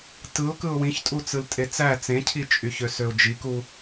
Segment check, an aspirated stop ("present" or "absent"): present